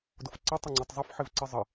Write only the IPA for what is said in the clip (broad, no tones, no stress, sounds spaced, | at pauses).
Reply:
d ʊ f ǀ ə tˤ ə ŋ͡ǀ ɵ tˤ zˤ ʊ f ħ ɪ v ǀ ɪ zˤ ə